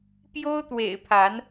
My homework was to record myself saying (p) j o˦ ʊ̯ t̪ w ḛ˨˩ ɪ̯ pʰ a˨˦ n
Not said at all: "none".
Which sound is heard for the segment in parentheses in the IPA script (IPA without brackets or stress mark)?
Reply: p